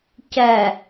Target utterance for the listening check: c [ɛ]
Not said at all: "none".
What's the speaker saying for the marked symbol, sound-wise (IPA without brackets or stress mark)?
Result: ɛ